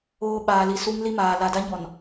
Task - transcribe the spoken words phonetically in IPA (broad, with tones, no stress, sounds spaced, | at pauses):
oː˦ ɓ aː˨ l i˨ s u˦ ŋ l i˦ m aː˨ l a˨ d a˦ ɲ ɔ˨ n